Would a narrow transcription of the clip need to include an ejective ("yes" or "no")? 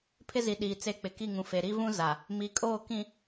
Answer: yes